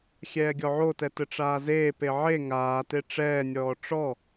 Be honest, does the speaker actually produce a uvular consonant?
no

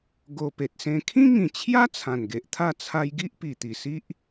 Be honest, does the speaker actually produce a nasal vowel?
yes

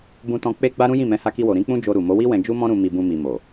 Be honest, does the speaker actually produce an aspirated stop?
no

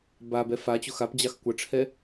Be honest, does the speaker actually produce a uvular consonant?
no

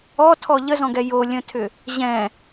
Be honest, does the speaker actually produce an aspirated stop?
yes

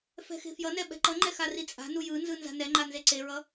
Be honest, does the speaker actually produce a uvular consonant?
no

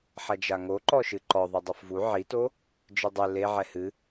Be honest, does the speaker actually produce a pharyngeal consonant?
yes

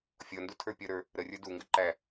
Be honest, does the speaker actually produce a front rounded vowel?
no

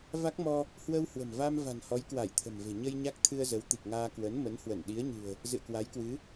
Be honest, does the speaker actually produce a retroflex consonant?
no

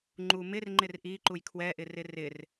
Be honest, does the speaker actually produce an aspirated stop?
yes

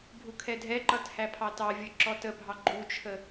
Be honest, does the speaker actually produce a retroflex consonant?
no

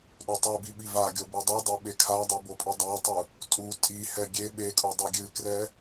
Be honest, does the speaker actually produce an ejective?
yes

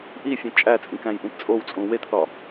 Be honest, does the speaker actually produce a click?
no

